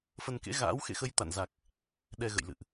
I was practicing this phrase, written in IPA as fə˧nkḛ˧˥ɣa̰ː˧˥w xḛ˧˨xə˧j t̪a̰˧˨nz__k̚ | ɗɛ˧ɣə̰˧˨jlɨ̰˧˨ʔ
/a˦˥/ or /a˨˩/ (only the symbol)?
a˨˩